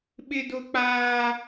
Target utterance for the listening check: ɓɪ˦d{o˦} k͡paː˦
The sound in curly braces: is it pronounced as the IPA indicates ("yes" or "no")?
yes